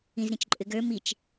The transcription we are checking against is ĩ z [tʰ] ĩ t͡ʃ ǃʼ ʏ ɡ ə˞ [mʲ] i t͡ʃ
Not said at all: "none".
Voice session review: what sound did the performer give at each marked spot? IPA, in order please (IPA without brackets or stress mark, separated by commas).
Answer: ɾ, m